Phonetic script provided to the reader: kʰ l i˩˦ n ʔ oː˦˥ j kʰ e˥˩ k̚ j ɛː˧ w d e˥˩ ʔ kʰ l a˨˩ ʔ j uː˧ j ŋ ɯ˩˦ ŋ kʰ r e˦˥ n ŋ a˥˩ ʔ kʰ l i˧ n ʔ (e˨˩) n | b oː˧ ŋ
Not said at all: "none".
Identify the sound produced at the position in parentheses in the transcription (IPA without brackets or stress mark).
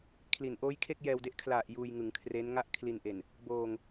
e˨˩